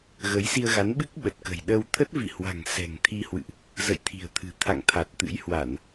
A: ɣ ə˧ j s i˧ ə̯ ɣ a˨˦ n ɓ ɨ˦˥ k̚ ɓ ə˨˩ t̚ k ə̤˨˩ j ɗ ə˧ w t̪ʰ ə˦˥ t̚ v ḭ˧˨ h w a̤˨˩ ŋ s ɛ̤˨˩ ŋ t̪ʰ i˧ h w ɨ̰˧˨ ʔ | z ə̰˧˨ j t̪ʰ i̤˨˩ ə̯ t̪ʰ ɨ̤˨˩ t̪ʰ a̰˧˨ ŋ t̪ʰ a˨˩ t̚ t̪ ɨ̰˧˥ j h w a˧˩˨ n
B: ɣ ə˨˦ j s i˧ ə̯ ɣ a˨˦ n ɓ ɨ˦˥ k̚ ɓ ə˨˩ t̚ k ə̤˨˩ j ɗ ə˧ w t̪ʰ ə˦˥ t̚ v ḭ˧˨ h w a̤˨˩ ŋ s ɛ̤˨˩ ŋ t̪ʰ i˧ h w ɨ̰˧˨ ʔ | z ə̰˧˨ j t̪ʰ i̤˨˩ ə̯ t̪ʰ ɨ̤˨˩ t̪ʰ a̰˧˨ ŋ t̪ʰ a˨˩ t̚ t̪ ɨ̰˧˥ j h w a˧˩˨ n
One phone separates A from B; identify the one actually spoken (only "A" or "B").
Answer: B